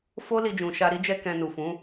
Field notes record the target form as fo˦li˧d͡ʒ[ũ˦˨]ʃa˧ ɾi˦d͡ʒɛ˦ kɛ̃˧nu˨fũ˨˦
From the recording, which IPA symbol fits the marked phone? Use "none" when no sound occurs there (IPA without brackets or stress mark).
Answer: ũ˨